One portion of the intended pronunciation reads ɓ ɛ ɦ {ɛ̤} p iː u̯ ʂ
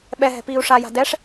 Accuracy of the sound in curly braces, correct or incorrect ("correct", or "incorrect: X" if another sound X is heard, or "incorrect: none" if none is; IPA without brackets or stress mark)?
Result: correct